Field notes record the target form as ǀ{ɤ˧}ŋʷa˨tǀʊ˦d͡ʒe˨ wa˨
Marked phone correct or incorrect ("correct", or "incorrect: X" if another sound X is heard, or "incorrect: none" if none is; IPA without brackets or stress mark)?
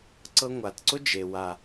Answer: correct